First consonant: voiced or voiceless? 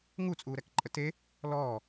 voiced